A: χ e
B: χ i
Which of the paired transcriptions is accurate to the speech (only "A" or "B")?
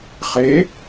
A